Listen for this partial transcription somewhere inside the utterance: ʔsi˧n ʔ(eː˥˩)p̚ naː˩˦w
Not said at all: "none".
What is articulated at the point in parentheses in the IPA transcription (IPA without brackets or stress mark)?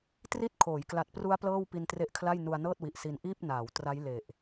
iː˥˩